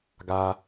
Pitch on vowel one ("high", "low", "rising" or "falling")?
low